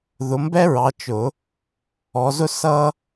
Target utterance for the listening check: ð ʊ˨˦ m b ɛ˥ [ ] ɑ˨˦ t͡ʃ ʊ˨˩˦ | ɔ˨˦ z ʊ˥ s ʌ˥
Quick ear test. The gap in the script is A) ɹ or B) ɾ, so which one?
A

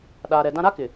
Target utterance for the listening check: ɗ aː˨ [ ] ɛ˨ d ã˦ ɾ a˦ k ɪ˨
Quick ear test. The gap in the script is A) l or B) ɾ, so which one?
B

